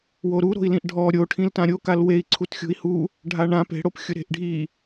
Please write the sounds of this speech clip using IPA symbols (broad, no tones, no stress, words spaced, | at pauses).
woɾuɾo̤i̯lĩʔ ɖʱɔ ɾʲoʈʰĩltã ɾʲokal wei̯ ǀʰutxʲo̤i̯hu | ɖʱaɳã pe̤ɽop xʲʊɾe̤ʔɖʱi